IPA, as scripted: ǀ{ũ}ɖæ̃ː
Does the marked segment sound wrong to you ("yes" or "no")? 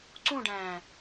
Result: no